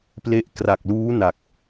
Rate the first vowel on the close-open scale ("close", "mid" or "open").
mid